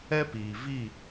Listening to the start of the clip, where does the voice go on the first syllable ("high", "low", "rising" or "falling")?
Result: high